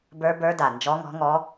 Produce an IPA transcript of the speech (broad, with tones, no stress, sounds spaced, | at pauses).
b ə˞˧˥ b ə˞˧˥ d a˨˩ n d͡ʒ ɔ˧˥ ŋ ɔ̤˧˥ ŋ ɔ˧˥